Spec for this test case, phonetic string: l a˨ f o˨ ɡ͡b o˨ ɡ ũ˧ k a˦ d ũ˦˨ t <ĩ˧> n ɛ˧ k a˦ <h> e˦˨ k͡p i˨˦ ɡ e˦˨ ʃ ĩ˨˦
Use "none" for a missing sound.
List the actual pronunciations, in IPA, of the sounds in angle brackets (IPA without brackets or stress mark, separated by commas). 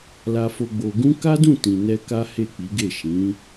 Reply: ĩ˨, h